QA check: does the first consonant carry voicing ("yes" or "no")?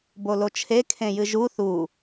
yes